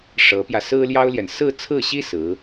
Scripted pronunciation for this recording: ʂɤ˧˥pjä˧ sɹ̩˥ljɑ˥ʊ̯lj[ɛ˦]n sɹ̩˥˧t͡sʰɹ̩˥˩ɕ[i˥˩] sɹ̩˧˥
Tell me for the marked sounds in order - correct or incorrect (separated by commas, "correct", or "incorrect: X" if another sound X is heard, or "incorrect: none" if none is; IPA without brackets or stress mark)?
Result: incorrect: ɛ˨, incorrect: i˥